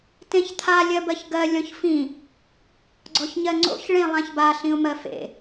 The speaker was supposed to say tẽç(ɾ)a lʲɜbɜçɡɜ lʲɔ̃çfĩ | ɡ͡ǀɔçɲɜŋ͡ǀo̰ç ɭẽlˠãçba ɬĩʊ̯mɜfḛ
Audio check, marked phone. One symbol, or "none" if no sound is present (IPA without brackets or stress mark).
t̪ʰ